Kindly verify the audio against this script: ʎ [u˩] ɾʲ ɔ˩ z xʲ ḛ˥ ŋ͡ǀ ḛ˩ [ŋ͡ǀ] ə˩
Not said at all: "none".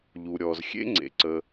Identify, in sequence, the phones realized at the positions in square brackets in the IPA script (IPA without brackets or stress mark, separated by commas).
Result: u˩, ǀ